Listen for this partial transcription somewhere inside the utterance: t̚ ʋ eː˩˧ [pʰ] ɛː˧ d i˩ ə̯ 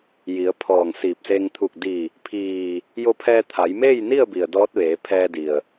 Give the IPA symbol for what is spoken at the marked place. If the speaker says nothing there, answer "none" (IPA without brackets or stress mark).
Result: pʰ